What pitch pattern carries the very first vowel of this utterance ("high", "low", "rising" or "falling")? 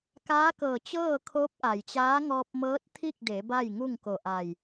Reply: rising